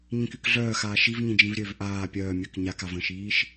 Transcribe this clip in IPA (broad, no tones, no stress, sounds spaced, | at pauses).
ɲ ĩ k y k ɮ œː x aː ʃ i v ɲ ĩ d͡ʒ ĩ v ɾʲ ø v ʔ aː pʲ œː mʲ œ k ɲ a k a v ə̃ ʃ iː ʃ